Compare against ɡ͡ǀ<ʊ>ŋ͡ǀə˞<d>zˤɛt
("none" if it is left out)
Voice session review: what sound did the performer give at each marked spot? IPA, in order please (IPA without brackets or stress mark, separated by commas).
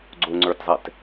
ʊ, t